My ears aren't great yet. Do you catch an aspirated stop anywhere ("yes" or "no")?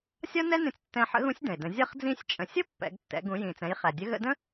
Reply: no